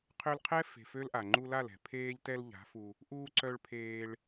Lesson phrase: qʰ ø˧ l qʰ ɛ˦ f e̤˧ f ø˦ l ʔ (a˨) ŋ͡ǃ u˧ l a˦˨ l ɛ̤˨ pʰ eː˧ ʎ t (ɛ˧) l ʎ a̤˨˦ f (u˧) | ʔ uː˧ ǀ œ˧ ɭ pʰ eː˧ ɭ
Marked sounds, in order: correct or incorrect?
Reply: correct, correct, correct

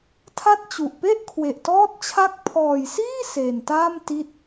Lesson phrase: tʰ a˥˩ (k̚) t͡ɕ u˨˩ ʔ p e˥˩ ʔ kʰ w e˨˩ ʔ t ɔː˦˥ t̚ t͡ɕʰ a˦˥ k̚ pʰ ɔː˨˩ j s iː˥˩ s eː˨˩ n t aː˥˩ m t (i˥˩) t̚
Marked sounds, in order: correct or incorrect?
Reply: incorrect: t̚, incorrect: i˦˥

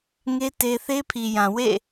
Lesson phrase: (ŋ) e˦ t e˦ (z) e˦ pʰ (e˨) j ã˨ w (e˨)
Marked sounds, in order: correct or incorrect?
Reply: correct, incorrect: θ, incorrect: i˨, incorrect: ḛ˦˨

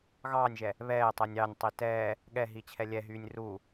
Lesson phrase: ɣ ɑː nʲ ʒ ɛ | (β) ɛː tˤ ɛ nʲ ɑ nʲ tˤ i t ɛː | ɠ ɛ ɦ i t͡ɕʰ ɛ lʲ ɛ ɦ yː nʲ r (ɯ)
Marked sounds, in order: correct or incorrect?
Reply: correct, incorrect: u

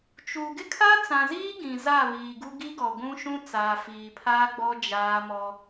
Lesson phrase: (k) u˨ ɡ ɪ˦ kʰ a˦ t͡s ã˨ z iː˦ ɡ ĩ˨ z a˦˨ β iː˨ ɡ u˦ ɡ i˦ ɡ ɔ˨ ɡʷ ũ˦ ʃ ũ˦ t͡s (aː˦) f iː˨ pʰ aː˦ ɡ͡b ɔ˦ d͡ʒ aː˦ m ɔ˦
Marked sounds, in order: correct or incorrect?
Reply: incorrect: t͡ʃ, incorrect: aː˨

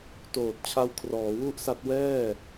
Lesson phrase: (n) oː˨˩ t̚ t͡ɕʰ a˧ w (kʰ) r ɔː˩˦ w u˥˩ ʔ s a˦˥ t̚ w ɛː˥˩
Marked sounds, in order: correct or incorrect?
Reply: incorrect: t, correct

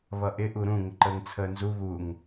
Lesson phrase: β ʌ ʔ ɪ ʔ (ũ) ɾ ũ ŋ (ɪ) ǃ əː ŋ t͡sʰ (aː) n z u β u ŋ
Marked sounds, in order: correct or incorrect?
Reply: incorrect: u, correct, incorrect: əː

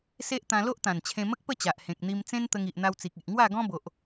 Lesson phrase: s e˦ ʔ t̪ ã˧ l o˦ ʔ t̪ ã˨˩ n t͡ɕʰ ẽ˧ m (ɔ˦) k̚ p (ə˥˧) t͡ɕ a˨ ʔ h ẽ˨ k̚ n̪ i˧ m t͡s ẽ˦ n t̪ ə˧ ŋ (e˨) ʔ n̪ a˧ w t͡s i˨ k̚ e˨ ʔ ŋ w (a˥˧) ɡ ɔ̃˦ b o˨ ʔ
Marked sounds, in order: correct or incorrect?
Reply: incorrect: ə˦, correct, incorrect: i˨, correct

